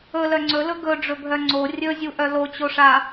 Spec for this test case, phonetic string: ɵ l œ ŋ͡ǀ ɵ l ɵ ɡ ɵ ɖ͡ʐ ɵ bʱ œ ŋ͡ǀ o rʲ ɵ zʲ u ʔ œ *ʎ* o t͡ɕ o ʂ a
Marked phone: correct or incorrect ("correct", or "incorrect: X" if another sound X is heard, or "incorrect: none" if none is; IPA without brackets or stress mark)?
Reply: incorrect: l